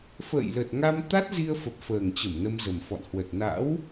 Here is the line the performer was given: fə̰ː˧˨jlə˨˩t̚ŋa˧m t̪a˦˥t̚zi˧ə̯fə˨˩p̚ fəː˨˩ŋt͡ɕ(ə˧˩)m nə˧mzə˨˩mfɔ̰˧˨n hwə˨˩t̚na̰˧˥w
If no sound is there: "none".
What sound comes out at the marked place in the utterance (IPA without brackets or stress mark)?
ə˧˩